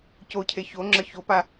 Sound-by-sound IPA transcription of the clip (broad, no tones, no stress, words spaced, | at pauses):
cocʰe çoŋ͡ǁə çopa